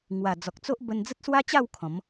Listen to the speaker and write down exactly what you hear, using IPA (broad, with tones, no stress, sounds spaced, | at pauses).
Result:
ŋ w a˨˩ d͡z ɔ˨ k̚ t͡s o˦ ʔ b ə˧ n d͡z ə˦ t̚ s w a˦ t͡ɕ a˥˧ w kʰ ɔ̃˨˦ m